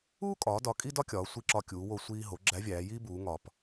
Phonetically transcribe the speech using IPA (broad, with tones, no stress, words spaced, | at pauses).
uː˥kʼɒː˩˧dɒ˩˧ kʼi˥dɒ˥kʲɒː˩˧ sʷi˧ǁɒ˧ kʲuː˩˧wo˧ sʷiː˧ɦo˩˧ ɡ͡ǁæ˧˥vʲæː˩˧jiː˥buː˩˧ ŋɒ˩p